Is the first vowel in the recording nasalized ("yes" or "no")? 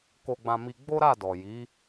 no